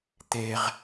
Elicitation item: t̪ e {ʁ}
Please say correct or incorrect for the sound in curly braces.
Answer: correct